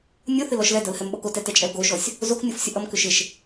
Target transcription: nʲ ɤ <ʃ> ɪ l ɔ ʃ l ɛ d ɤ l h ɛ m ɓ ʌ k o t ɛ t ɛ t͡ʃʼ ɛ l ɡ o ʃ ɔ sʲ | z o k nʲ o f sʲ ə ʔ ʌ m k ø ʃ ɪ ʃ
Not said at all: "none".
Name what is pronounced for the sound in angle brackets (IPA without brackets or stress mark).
θ